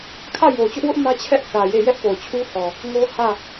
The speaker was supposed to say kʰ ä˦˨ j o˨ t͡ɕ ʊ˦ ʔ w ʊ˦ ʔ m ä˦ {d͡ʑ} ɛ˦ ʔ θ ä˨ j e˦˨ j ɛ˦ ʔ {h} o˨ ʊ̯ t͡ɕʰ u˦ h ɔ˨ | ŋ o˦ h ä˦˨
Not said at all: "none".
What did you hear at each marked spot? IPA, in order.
t͡ɕʰ, p

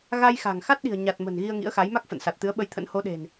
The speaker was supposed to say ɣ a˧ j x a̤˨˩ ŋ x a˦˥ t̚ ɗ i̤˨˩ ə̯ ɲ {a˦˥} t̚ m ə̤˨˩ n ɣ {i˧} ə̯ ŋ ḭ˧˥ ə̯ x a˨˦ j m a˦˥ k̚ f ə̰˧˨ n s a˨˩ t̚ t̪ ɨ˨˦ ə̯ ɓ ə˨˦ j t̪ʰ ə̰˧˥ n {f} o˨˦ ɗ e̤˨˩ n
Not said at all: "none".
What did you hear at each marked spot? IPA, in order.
a˨˩, i˧, h

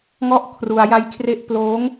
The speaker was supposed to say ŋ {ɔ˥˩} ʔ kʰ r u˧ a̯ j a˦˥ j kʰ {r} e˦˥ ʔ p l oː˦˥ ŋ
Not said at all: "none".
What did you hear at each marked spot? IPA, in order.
ɔ˥˩, r

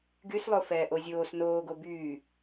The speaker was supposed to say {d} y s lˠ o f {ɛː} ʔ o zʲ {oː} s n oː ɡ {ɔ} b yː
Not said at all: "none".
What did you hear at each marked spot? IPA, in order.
ɡ, ɛː, oː, o

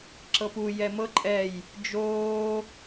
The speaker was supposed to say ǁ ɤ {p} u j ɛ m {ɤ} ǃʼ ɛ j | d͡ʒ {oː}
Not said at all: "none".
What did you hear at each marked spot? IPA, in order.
p, ɤ, oː

